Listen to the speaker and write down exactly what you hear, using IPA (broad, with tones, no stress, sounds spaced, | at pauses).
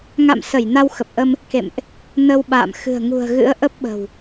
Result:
ŋ a̰˧˨ m s ə˧˩ j n a˧ w x ə˨˩ p̚ ʔ ə˧ m | k ḛ˧˨ m ʔ | n ə˧ w ɓ a̰ː˧˨ m x ɨ̤˨˩ ə̯ ŋ ṳ˨˩ ə̯ ɣ ɨ̰˧˥ ə̯ ʔ ə˦˥ p̚ ɓ ə̤˨˩ w